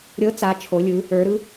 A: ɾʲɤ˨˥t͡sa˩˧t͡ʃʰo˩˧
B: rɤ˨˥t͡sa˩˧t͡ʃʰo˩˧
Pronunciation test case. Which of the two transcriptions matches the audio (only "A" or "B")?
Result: A